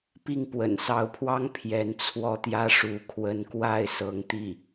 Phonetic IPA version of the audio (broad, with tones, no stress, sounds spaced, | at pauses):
p i˥˩ ŋ p w ə̰˨˩ n s ɑ˧˥ ʊ̯ pʰ w ɑ˥ ŋ pʰ j ɛ˧˥ n t͡sʰ w ɔ˥ t̪ j ä˥ ʂ u˧˥ kʰ w ə˧˥ n k w a˥˩ ɪ̯ s ɤ˧˥ ŋ t̪ i˥˩